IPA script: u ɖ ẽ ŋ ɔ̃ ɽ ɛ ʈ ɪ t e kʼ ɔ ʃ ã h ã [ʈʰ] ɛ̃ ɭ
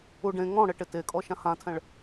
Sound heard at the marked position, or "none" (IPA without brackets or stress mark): tʰ